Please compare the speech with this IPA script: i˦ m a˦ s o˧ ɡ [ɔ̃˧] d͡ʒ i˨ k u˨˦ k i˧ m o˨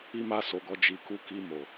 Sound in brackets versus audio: incorrect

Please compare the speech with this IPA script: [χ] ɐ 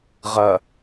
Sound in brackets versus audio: incorrect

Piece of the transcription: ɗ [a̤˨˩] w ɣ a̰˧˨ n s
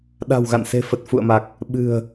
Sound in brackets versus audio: correct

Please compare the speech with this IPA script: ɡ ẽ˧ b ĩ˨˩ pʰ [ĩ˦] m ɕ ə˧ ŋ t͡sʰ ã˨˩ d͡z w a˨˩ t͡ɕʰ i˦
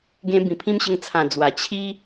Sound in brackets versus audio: correct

